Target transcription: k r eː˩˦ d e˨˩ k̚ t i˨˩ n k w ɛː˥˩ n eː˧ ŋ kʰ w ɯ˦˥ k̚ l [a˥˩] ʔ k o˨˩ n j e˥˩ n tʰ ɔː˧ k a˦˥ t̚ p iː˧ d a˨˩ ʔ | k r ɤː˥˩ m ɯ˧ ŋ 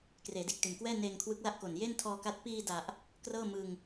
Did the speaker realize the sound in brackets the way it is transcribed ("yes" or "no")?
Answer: yes